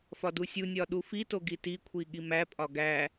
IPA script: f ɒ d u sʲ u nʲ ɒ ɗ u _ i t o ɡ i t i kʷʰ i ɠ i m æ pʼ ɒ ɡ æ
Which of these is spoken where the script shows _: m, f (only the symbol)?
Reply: f